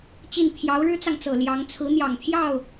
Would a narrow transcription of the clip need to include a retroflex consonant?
yes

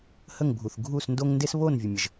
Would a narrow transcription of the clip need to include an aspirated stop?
no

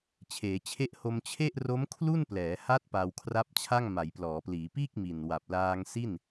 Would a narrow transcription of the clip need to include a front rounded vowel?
no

